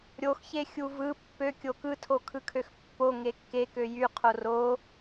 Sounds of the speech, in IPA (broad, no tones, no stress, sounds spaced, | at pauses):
ɾʲ o x ç e xʲ u v ɯ pː ø kʲ o k ɯ tʰ o kʰ ɯ kʰ ø x pː o ŋ e kː e k ø j y qʰ o r o